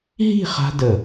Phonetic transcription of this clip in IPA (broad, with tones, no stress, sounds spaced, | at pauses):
ɦ i̤˥˧ χ a̤˥ d ə˧˩